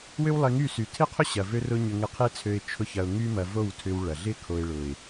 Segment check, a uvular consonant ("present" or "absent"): present